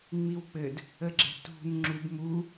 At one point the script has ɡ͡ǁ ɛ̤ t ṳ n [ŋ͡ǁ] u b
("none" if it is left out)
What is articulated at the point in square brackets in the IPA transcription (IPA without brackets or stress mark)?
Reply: ŋ͡ǁ